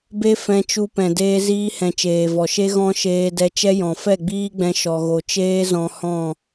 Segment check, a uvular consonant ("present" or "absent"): absent